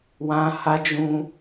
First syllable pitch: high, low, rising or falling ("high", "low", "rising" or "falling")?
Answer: high